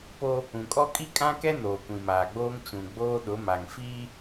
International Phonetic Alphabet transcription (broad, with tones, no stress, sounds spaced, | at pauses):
p o˦ | ũ˨ kʼ ɔ˦ kʼ i˦ kʼ ã˦ k ɛ˦ n oː˨ kʷ ĩ˨ m aː˨ ɡ͡b oː˦ ŋ t͡ʃ ũ˨ ɡ͡b oː˦ ɗ ʊ˨˦ m a˨ ŋ f iː˦